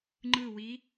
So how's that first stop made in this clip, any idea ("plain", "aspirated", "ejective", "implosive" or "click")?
click